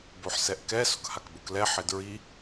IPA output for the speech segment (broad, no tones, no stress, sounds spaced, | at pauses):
b o ħ s ɛ ʔ k ɛ s ʊ k h a k b ʊ k l ɛ ħ ɪ d ɹ i